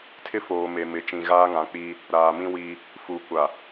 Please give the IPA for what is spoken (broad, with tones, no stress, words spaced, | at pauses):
tʰɪ˦foː˨me˨ mɪ˨t͡ʃĩ˨ ɣaː˦ŋã˨˦k͡piː˦ | ɾaː˨mĩ˦wiː˦ | fu˨kʷa˨